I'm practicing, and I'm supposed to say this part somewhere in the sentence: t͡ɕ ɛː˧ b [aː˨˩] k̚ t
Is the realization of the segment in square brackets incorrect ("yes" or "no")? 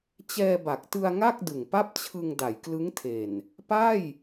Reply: yes